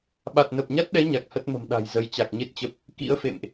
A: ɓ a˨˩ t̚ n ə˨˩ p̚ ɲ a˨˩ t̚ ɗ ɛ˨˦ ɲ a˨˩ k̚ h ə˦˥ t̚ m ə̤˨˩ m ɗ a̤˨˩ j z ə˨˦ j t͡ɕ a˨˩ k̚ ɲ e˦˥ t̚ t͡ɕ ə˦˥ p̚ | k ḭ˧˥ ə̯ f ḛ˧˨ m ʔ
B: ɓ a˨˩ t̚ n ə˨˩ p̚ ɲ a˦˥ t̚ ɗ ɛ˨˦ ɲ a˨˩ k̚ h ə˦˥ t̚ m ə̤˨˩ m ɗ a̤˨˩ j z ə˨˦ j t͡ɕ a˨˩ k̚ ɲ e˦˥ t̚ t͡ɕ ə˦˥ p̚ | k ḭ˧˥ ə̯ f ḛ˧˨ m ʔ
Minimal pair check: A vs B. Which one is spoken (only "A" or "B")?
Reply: B